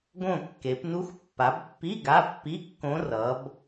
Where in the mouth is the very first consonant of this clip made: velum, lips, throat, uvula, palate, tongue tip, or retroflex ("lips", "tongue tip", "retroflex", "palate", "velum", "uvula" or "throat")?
velum